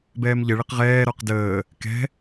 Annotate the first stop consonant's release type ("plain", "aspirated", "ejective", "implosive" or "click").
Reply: plain